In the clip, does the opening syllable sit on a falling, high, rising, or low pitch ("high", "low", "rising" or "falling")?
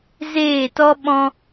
falling